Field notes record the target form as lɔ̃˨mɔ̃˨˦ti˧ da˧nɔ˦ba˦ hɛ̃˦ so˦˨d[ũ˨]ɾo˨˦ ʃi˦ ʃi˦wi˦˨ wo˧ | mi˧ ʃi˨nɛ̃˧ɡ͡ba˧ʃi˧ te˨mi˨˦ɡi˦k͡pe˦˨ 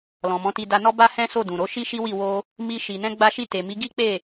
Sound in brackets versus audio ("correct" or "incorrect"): correct